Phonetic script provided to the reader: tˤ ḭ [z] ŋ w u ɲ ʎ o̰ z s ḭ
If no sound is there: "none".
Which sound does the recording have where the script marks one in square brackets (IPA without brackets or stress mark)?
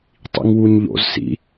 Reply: none